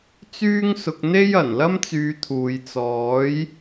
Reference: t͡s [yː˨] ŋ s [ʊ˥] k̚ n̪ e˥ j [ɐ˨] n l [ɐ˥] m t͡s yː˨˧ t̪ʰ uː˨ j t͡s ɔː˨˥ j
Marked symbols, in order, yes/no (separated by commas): no, no, no, yes